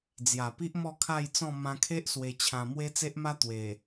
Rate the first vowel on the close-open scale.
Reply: open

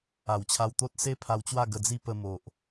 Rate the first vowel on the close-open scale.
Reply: open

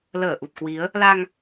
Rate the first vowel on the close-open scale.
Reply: mid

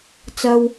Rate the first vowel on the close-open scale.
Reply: open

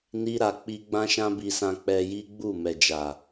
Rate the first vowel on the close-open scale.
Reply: close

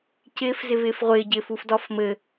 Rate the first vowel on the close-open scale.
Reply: close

